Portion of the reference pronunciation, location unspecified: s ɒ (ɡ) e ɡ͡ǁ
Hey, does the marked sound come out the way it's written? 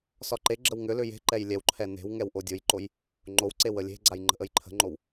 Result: no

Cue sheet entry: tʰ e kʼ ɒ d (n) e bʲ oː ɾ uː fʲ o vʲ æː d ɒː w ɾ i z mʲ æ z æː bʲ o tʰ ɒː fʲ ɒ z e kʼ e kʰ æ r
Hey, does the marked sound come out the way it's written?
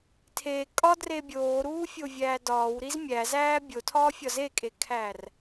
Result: no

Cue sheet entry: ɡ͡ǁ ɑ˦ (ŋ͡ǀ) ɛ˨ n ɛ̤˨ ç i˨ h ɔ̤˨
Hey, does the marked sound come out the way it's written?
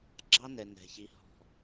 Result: no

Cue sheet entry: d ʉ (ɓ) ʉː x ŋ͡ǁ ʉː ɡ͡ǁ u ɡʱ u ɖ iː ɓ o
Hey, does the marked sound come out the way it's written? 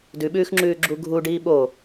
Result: yes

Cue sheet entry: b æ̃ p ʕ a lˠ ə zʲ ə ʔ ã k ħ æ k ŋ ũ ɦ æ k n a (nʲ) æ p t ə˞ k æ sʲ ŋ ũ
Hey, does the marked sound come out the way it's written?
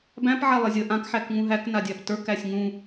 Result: no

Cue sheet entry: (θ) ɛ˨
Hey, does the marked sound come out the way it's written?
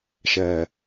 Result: no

